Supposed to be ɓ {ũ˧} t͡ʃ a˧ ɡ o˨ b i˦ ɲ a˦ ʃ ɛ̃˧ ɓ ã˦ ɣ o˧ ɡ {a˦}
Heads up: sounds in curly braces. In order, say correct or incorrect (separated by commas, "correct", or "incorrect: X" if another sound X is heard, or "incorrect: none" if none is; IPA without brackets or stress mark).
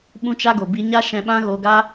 correct, correct